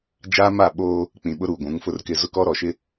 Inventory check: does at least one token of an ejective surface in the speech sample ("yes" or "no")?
no